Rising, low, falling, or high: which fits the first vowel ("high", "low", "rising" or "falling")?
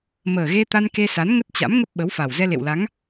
low